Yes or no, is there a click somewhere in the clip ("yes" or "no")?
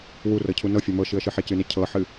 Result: no